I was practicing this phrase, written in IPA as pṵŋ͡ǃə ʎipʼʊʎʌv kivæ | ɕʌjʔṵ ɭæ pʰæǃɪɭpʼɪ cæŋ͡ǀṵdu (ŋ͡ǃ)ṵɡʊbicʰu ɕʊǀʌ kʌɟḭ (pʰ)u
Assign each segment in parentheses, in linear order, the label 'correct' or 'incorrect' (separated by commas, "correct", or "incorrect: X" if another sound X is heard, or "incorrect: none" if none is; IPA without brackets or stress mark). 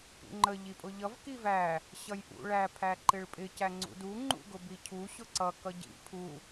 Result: correct, correct